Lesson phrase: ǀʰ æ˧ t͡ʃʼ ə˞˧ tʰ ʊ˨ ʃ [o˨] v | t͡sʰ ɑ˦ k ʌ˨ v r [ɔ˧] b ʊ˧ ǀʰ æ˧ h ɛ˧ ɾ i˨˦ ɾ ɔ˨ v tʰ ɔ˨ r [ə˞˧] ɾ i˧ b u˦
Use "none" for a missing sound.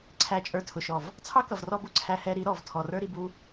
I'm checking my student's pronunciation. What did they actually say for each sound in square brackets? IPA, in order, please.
ɔ˨, ɔ˧, ə˞˦

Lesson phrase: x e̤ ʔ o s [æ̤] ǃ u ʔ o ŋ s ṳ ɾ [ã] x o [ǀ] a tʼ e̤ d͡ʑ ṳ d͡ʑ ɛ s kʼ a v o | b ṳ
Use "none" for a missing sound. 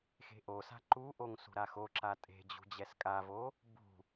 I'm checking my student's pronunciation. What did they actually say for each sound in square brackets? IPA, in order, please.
a̤, a, ǁ

